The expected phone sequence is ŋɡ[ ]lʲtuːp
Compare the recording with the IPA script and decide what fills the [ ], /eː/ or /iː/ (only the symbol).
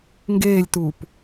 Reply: eː